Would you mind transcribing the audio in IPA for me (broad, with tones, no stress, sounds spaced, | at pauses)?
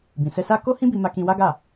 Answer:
b ĩ˨ s ɛ˧ s a˦ k o˦ h ĩ˦ b i˧ m a˧ k ĩ˧ w a˦ ɡ a˦˨